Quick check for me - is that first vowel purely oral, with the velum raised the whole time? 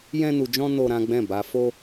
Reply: no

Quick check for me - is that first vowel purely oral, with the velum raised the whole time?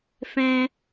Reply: no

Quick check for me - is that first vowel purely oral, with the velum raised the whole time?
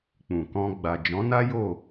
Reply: no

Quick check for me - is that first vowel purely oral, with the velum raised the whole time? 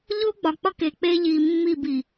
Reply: yes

